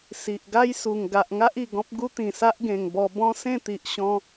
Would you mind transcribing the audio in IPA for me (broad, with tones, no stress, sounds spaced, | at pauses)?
s i˨ ʔ ɡ a˦ j s u˨˩ ŋ ɡ a˨ ʔ ŋ a˦ ʔ i˨˩ ɡ ɔ̃˦ p̚ ɡ u˦ t̪ ĩ˨˩ s a˦ ʔ ɡ ẽ˨˩ ŋ b ɔ˧ b ɔ̃˦ s ẽ˥˧ t̪ i˨ ʔ ɕ ɔ̃˧